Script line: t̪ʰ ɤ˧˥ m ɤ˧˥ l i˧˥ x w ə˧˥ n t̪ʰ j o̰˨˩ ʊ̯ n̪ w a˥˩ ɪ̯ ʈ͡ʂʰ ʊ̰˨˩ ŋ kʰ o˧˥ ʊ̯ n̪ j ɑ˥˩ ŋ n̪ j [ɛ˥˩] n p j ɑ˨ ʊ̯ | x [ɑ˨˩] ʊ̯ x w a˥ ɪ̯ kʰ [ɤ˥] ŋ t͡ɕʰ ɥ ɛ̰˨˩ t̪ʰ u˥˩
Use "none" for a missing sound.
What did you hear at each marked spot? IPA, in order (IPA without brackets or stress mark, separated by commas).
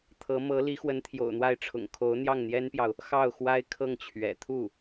ɛ˥, ɑ˥˩, ɤ˥˩